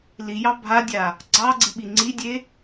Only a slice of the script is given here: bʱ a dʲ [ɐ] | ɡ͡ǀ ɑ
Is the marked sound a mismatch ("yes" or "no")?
yes